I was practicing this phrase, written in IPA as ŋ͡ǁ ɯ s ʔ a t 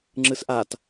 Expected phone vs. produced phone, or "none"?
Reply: none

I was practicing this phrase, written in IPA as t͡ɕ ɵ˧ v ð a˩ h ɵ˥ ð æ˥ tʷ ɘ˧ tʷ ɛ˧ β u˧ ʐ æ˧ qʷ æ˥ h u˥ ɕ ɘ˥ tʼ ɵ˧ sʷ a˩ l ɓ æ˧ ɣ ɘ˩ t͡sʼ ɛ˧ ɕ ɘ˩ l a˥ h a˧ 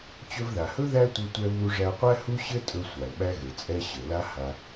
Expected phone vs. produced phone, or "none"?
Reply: none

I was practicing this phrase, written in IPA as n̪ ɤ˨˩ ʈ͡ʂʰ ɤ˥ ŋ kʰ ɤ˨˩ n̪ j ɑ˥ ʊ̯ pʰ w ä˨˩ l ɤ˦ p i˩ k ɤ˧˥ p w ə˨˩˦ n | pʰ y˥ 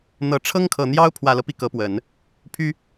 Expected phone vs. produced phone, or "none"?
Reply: none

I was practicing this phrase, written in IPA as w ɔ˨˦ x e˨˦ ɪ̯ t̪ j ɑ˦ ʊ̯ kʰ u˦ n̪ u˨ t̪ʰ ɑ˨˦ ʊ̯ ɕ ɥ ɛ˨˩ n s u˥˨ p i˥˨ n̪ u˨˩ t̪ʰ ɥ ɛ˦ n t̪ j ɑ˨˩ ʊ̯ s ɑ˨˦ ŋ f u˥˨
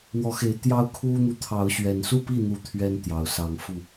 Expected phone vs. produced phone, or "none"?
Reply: none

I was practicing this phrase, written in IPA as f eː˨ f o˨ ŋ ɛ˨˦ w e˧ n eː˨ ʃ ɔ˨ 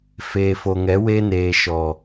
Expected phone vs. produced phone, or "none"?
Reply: none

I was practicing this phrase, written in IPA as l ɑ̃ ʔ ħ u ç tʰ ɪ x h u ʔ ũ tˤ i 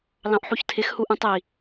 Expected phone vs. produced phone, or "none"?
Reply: none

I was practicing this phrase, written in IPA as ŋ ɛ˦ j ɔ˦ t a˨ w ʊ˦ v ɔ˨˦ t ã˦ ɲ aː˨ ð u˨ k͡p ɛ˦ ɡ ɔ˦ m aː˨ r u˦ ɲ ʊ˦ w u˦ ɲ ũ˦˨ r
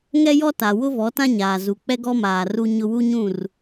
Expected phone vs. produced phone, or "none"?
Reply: ð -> z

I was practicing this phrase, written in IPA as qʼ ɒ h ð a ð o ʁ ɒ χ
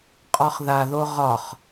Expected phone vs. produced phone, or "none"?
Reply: h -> χ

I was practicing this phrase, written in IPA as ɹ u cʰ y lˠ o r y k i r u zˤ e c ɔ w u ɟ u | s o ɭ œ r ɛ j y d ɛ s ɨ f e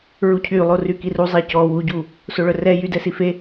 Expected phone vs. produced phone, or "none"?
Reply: ɨ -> i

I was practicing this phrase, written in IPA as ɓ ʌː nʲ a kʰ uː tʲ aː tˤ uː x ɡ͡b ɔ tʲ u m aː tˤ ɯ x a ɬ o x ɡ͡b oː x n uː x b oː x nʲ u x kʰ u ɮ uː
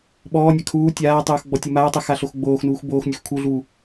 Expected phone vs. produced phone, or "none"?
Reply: ʌː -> ɔː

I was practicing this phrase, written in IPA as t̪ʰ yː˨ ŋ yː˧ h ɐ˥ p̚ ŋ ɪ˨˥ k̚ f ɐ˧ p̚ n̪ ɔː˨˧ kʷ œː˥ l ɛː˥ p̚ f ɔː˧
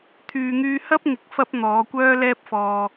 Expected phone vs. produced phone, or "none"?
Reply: none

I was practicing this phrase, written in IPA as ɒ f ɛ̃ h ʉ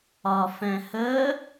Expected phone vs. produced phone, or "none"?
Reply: ʉ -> ə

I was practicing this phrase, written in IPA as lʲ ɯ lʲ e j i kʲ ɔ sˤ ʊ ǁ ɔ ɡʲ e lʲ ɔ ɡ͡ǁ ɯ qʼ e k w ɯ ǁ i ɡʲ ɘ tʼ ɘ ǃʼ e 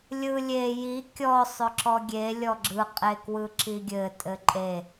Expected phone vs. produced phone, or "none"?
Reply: none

